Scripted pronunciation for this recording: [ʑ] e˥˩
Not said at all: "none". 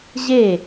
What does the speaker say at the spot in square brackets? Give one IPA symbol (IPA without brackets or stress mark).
ʑ